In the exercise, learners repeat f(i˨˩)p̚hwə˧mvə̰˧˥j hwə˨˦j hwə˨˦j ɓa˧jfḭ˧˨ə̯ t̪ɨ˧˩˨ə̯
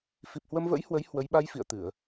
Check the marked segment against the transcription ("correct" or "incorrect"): correct